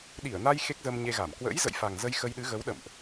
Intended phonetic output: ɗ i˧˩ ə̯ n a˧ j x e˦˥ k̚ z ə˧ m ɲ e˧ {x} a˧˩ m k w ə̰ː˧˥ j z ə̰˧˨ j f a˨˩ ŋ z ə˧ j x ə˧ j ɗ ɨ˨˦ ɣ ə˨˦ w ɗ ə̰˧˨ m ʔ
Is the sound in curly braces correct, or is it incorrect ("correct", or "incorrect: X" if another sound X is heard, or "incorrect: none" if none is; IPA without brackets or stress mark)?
incorrect: ɣ